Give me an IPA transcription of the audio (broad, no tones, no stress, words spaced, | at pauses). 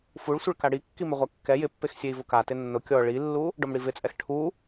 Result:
fuɭsʷɪɭka ɽikːi mɪʁʷɛkːɛ jɪpːexsʲei̯ vʊka tɪnːʊ kʲɔ ɭilːu | ɖɔmɽivɪt͡sʼɛx ʈʰu